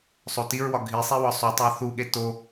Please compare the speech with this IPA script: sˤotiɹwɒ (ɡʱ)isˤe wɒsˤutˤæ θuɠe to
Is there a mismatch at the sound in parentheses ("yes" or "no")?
no